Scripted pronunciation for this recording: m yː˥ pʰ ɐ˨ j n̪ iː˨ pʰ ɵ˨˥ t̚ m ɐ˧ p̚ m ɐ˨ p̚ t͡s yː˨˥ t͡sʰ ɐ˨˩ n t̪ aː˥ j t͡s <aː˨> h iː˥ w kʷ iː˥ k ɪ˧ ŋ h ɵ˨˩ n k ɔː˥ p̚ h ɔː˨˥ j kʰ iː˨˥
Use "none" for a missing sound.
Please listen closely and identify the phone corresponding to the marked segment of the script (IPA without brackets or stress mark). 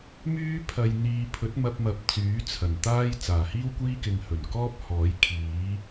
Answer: aː˨˩